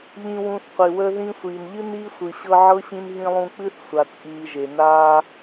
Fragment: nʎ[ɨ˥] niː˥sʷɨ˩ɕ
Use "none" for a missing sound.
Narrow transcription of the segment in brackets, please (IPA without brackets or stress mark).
ɨ˥